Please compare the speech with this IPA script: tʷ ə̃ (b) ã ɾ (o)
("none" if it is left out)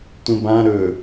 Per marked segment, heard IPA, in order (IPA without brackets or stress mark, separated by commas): b, ɵ